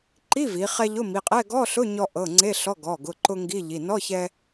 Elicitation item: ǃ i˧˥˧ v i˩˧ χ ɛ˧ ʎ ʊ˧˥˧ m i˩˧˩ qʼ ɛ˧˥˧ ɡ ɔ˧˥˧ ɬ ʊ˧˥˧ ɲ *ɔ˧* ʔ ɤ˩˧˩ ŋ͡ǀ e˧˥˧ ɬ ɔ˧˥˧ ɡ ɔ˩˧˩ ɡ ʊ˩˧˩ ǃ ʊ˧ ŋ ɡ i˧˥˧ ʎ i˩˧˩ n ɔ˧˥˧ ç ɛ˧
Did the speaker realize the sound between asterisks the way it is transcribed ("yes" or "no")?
yes